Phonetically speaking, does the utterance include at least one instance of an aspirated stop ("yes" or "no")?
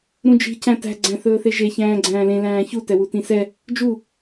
no